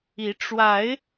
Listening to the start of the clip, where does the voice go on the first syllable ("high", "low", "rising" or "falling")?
rising